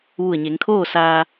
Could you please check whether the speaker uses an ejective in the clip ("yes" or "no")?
no